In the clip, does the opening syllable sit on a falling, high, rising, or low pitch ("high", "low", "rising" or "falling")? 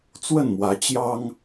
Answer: falling